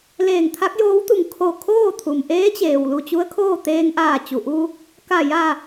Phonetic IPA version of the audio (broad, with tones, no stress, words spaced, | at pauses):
leː˧˩ŋt̪ʰa˧˥k̚joː˧˥wt̪u˧˩ŋ kʰo˧˩ kʰoː˥˨ t̪ʰu˩mʔeː˧˥t͡ɕeː˩w lu˧˩t͡ɕu˧˥ə̯kʰoː˥˨ t̪eː˧ŋʔaː˧˩ t͡ɕu˩ʔu˧ | ka˧˩ ja˧˩